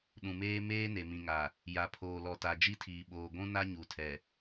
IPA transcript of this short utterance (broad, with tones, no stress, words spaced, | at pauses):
ɗũ˨meː˦ meː˦ ne˨mĩ˨ŋa˨ | ja˨pʰoː˨lɔ˨ta˨ d͡ʒi˦tʰiː˨ɓoː˨ ɡʷũ˦ na˦ɲu˨tʰɛ˨